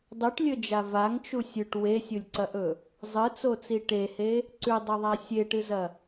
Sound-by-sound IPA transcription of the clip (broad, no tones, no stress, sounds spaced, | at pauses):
dˤ ʉ ʈ lʲ ɵ d͡ʒ a v a ŋ t͡ʃ u sʲ ʉ ʈ w e sʲ u lʲ ǀ ɐ ʔ ɵ | zˤ ɨ t͡s o t͡s i ʈ e h e | ǀ ʉ dˤ ɵ ðˤ a sʲ e ʈ ɨ z ɐ